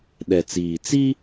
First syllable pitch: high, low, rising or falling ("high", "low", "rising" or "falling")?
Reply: low